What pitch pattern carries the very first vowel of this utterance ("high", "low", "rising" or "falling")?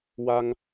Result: high